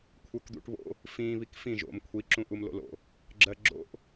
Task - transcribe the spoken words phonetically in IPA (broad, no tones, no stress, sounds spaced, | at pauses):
kʷʰ ə˞ k d̪ ṵ ʈ β o̰ | f ĩ β i k f ĩ ʒ o̰ m kʷʰ i ǁ ũ ʔ u m l o̰ l o̰ | ɡ͡ǁ ɜ ɡ͡ǁ o̰ ʔ